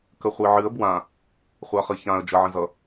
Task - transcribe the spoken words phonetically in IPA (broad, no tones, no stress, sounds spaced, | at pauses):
k ə χʷ i ʕ ɨ ə̯ b w ã | χʷ a χ ɨ ç ã ə̯ d͡ʒ ʌ ʕ ə̃ z ʌ